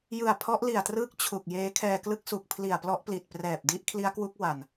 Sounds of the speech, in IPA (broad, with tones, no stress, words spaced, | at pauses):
jɯ˨˩a̯pʰɔ˦˥ʔli˨˩a̯trɯː˦˥k̚ t͡ɕʰu˨˩k̚jeː˦˥ kʰɛː˧ klɯ˦˥k̚su˨˩k̚ pʰli˨˩a̯plɔ˦˥ʔ pli˨˩t̚prɛː˨˩p̚di˦˥ʔ kʰli˦˥a̯kwu˦˥k̚ wa˨˩n